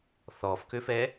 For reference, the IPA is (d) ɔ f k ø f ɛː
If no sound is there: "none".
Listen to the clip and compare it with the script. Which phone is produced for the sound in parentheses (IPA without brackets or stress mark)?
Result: θ